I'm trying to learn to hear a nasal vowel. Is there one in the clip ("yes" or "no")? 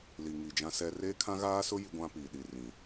yes